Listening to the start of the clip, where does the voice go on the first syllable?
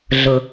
low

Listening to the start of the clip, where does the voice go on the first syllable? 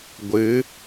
rising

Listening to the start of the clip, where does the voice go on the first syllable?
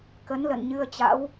rising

